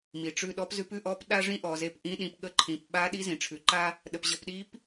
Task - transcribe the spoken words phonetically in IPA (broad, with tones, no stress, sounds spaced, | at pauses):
m i˩ ʈ͡ʂ ʉ˧ ɗ ɔ˧˥ p z ʉ˧˥ p ʉ˥ ʔ ɔ˧˥ p ɗ a˥ ʐ ĩ˥ ʔ ɔ˩ z e˧ p ʔ ĩ˧˥ ɗ ĩ˩˧ p ɠ ə˧˥ ǃʰ ĩ˩˧ p ɓ a˧˥ ɗ i˧˥ z ĩ˩ ʈ͡ʂʰ ʉ˩˧ ǃ a˥ | ɗ ə˩ p ʑ ə˩˧ p ɗ i˧˥ p